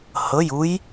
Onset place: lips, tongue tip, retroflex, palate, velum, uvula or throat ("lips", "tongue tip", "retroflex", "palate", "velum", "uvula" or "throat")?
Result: throat